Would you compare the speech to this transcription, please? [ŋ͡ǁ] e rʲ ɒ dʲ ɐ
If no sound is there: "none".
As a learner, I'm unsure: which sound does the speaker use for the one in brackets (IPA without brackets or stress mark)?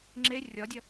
ŋ͡ǁ